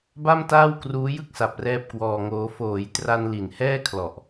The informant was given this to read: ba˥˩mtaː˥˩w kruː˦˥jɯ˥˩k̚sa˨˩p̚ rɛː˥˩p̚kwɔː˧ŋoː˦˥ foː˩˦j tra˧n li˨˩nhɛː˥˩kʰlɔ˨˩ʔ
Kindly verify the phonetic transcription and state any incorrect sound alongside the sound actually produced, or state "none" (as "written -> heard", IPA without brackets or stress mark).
none